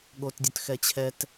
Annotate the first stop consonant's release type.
implosive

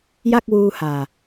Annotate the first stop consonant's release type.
plain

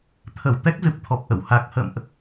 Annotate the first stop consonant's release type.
aspirated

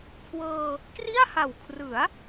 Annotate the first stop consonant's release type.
aspirated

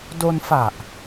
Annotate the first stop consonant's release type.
plain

